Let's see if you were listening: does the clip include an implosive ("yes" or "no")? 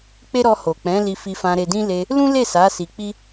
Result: no